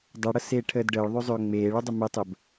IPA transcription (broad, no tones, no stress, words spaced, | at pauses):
dˤɛɽəseːʈʰəːd ɖəːɭðˤøzˤøː ŋ͡meːɭudˤə mɛtˤəb